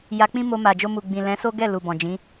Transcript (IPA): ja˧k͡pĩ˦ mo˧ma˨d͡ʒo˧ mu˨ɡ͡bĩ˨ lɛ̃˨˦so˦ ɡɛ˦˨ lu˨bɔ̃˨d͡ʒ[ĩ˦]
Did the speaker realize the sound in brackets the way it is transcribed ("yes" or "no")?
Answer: no